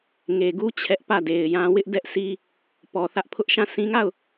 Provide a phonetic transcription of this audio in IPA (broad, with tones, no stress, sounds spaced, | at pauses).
ŋ e˨ ɡ u˦ t͡ɕʰ ɛ˦ ʔ p ä˦˨ d e˨ ɪ̯ j ã˦ w ɪ˦ ʔ d ɛ˦ ʔ sʰ i˦ | p ɔ˨ θ ä˦ ʔ pʰ ʊ˦ ʔ ʃ ã˦˨ sʰ ĩ˦ ŋ a˦˨ ʊ̯